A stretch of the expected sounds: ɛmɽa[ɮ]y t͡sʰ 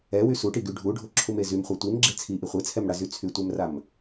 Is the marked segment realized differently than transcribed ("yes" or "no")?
yes